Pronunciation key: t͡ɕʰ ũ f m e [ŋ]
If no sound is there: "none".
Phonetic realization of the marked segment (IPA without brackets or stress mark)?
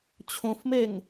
ŋ